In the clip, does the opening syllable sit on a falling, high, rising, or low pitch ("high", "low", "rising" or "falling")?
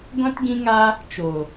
high